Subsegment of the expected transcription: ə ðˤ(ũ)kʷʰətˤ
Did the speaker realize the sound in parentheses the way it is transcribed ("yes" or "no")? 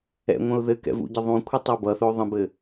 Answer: yes